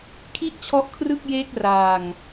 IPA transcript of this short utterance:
kʰ i˥˩ ʔ t͡ɕʰ ɔ˦˥ ʔ kʰ r ɯ˥˩ k̚ j eː˦˥ k̚ r aː˧ ŋ

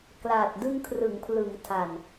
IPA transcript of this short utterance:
k l aː˨˩ t̚ d ɯ˧ ŋ kʰ r ɯ˩˦ ŋ pʰ l ɯ˩˦ ŋ tʰ a˨˩ n

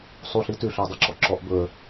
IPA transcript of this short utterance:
sˤ u ɬ i t ʉ ɬ œ ə̯ dˤ y ǁ ɔ ǁ ɔ ʔ b ɵ ə̯

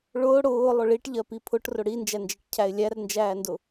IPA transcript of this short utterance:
ɭ ʊː ɽ ʊː lˠ ʊ ɭ i ʈ ʎ ɜ p i pʰ ʊ ʈ r ʊ ɽ i n d͡ʒ æ n d͡ʒ ɜ ʈ cʰ æ ɪ̯ lʲ æ r n d͡ʒ æː n d ʊ

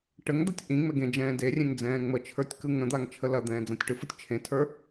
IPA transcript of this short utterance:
ʈ ə ŋ d̪ a tʲ ʔ ĩ ŋ͡m ɛ ɡ ẽ d͡ʒ ɛ̃ː d e rʲ ẽ ŋ d͡z ɛ̃ː ŋ͡m ə t͡ʃʰ ə˞ tʲ k ɯ ŋ ə̃ d̪ a ŋ t͡ʃʰ ə l ɐ d̪ ɛ̃ː d͡z ã tʲ ʈ ɯ f ɯ tʲ t͡ʃʰ ẽ tʰ ə˞

